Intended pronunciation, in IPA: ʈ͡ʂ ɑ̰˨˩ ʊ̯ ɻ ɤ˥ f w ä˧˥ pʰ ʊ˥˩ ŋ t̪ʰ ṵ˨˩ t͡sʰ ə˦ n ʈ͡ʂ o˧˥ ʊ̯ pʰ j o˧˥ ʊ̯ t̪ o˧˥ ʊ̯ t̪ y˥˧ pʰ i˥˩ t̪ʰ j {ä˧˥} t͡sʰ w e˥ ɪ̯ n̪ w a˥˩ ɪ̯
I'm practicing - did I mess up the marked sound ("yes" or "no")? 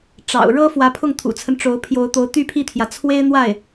yes